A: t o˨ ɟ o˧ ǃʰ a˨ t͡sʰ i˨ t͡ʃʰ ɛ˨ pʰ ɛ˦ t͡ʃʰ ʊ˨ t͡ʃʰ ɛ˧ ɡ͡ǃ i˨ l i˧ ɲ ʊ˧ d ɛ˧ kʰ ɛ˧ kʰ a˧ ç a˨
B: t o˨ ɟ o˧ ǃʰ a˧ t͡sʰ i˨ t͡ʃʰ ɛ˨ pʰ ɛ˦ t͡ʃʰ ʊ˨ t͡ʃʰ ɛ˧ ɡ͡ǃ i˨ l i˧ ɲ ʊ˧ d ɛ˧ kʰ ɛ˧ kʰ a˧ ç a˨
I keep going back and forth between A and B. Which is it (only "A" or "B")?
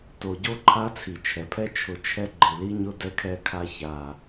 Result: B